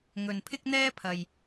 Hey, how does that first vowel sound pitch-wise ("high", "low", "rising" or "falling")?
low